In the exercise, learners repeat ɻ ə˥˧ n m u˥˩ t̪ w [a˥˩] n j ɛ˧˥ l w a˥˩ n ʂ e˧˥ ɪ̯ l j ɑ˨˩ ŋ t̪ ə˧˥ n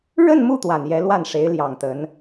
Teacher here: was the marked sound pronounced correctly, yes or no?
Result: no